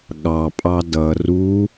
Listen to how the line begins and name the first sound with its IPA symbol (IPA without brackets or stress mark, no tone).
ɠ